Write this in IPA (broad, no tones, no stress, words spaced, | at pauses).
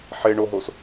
ħeɳoɦos